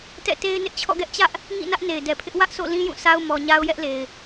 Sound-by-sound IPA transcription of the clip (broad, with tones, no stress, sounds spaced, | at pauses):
t ɛ̰˦˨ t e˦ ɪ̯ n ɪ˦ ʔ t͡ɕʰ ɔ̰˦˨ ɡ ɛ˦ ʔ t͡ɕ ä˦ ʔ | ŋ ḭ˦˨ n ä˦ ʔ n e˨ ɪ̯ d ɛ˨ pʰ ɪ˦ ʔ w ä˦ ʔ s o̰˦˨ l ĩ˦ j ũ˦˨ sʰ a˦ ʊ̯ m ɔ˦ ɲ a˦ ʊ̯ j ɛ˦ ʔ l e˨ ɪ̯